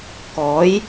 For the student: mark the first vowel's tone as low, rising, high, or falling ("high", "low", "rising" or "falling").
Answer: rising